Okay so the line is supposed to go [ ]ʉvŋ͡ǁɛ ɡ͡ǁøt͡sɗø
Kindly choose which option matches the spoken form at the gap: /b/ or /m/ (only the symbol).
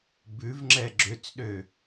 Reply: b